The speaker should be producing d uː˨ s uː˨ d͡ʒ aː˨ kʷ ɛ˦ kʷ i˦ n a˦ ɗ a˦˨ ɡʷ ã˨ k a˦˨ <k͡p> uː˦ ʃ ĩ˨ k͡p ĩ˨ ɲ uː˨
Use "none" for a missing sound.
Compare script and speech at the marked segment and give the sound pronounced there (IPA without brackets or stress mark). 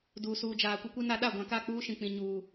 k͡p